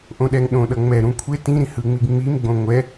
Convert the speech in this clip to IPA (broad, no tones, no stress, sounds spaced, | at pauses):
ʔ õ ɗ ɛ ŋ ɗ õ ɗ ʌ ŋ͡m ɛ ɾ ũ kʷʰ e t ĩ ɾ ĩ h ɯ ŋ͡m i ɡ ŋ͡m i m ɡ͡b õ ŋʷ ɛ